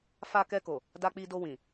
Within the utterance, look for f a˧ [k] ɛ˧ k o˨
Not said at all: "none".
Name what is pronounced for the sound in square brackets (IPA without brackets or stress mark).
k